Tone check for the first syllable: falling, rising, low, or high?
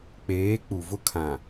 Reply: rising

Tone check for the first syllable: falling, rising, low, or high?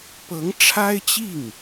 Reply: rising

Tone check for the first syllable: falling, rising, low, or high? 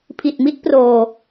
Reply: low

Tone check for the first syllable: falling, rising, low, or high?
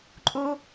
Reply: high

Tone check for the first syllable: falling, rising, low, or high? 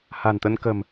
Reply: low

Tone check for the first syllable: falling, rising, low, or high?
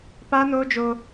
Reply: high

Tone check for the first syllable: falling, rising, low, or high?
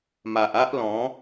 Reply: low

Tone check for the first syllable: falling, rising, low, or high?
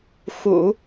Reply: low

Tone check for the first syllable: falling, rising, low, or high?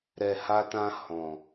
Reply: low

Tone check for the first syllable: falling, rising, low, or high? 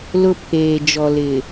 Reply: high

